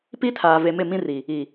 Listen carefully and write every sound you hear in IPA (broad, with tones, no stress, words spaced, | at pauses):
pi˦tʰaː˨ ve˨mɪ˦˨mĩ˦ri˨ | i˨